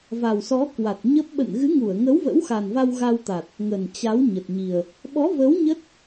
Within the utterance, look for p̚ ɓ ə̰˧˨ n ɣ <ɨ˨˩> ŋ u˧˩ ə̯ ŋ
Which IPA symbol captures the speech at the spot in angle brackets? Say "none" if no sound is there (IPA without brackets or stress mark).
ɨ˨˦